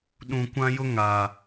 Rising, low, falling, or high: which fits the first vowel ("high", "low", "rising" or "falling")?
low